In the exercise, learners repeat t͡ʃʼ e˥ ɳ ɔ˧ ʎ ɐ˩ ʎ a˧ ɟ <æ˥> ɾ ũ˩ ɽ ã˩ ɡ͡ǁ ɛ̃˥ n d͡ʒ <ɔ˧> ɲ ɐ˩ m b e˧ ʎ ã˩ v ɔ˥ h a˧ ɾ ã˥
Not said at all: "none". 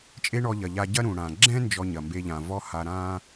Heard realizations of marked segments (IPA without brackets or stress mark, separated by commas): ɐ˥, ɔ˧